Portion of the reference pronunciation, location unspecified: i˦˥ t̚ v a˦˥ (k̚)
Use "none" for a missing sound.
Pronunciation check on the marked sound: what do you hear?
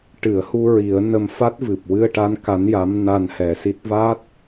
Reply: t̚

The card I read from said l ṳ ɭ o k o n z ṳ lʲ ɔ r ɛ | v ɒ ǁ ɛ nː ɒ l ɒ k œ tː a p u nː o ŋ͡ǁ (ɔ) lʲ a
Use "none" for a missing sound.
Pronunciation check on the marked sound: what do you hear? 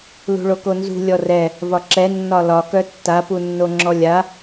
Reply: ɔ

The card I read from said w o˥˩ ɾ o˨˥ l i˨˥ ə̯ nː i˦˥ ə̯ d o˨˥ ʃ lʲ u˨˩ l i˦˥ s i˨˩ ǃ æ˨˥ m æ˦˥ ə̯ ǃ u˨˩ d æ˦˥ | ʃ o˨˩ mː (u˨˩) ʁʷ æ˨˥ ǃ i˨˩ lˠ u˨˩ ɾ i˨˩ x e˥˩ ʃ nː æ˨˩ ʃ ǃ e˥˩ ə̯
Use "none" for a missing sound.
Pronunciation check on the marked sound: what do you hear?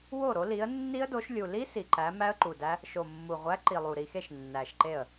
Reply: u˨˩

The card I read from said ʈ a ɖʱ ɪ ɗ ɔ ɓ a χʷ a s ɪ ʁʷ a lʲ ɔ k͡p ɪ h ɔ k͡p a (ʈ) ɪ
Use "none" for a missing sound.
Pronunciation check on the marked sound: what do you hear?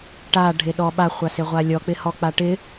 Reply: ʈ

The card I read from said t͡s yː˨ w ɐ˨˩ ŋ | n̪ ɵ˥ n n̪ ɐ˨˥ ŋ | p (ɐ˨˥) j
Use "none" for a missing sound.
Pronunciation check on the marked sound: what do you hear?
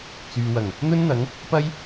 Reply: ɐ˥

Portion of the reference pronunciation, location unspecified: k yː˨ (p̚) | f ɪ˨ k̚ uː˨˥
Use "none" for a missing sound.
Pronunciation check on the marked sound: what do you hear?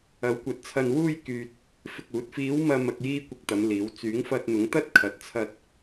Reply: t̚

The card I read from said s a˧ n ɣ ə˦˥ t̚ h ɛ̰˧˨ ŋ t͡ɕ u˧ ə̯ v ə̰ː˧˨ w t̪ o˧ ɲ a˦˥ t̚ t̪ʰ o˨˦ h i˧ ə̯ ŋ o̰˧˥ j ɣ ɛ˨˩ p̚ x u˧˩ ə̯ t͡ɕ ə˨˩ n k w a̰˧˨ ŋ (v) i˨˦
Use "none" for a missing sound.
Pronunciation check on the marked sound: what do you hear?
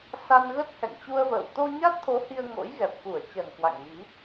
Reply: v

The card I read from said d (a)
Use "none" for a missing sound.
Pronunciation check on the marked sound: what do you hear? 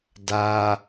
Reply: a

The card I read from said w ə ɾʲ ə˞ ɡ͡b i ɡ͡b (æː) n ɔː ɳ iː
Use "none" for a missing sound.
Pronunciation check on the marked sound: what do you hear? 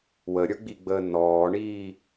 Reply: əː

